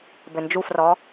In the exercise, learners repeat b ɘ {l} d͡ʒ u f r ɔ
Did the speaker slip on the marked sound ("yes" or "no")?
yes